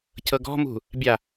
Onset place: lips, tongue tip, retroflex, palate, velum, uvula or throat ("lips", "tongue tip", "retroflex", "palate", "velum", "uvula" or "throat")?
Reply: palate